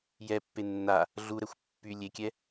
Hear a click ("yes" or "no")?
no